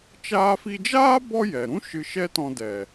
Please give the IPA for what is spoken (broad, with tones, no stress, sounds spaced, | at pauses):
t͡ʃ aː˧ f i˧ d͡ʒ aː˦ b ɔ˦ j ɛ˨ ɾ ũ˦ ʃ ɨ˧ ʃ ɛ˦ t ɔ̃˧ d ɛ˨